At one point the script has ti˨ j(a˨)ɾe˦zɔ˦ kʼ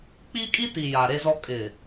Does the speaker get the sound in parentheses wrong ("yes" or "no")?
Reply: no